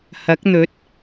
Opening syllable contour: rising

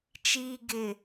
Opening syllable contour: low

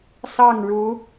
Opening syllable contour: falling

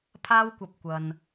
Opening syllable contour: high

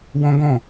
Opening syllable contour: high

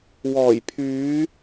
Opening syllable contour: low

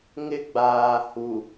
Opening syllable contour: high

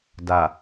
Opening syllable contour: low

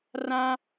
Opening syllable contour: high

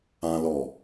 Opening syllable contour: high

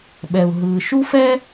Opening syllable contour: low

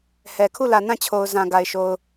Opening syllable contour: low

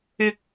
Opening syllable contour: high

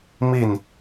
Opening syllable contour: falling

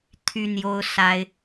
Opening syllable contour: high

